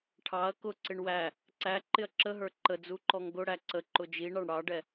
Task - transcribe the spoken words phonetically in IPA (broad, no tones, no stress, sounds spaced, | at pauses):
ʈʰ ɑ ɐ̯ k ʊ ǀ ɪ ɳ w æ | ǀ æ ǃ ɪ ɐ̯ ǁ ə ɦ ə˞ ǃ ə d͡z u ǃ ɔ ŋ ɡ ʊ ɽ æ ǀ ə ǃ ʊ d͡ʒ i ɳ ɑ ɳ ɽ ɑ ɖ ɛ